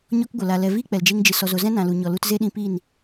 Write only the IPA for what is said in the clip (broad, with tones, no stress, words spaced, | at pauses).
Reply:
ɲɔ˧k ɡʷə˨la˨ lɛ˨ viː˦k͡pɛ˨ld͡ʒe˧ŋ d͡ʒɨ˨ sɔ˨zo˨zɛ̃˦ nã˨lu˨ɲɔ˨ lu˧tze˦ɗĩ˧ piː˦˨n